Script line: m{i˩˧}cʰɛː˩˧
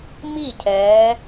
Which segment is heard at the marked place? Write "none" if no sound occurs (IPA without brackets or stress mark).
i˥˩